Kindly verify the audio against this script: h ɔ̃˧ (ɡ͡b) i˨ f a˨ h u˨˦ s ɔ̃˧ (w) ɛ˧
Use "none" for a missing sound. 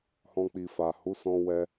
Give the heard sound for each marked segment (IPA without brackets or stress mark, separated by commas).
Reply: k͡p, w